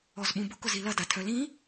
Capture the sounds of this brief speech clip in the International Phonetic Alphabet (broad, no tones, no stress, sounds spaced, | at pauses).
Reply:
ɔ z ɓ ũ b ʊ k ʊ z i l ɐ d a tʰ œ l ĩ